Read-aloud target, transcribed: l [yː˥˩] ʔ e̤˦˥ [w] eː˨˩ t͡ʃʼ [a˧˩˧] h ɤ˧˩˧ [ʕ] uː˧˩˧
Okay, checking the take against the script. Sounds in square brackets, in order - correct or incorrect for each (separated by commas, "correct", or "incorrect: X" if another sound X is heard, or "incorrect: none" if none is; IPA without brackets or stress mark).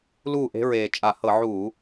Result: incorrect: uː˥˩, incorrect: ɹ, correct, correct